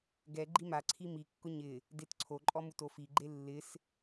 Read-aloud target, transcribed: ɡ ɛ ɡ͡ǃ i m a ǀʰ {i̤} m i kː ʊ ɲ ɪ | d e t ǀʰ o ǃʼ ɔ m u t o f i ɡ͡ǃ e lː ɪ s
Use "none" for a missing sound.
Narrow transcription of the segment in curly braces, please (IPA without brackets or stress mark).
i